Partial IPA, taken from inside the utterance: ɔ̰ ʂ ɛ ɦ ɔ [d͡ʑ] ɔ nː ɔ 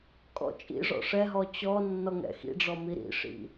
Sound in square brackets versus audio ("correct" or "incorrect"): incorrect